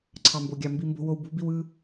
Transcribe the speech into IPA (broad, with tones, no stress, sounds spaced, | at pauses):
ǀʰ ɑ˥ m b o˥ ɡʲ ɑ˥ m b i˥ m b o̤˥ w o˥ w b ṳ˥ b i˥ w ɯ˥